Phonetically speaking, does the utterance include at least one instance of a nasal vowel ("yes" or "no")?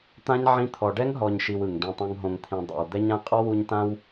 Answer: yes